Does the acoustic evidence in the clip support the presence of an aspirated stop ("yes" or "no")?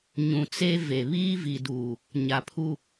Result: yes